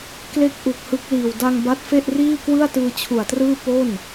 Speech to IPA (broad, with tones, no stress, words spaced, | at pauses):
kle˥˩k̚ʔu˨˩k̚hɯ˦˥k̚liː˨˩w da˧ŋba˦˥t̚fe˥˩ʔriː˥˩ kwɯ˥˩a̯tɯː˧t͡ɕʰu˨˩a̯trɯː˥˩ po˥˩n